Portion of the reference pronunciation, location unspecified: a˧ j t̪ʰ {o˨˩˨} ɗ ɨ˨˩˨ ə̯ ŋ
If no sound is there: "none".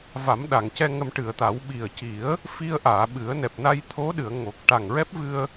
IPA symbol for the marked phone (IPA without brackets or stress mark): o˧˥